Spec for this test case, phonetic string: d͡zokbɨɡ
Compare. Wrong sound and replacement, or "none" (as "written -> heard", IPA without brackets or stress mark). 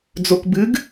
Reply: none